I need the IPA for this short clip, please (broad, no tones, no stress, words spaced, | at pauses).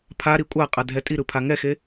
pʰaɾi kʷʼaqʼa dʱɛtʼiɾɯ pʰaŋɛxe